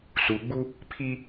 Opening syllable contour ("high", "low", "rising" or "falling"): low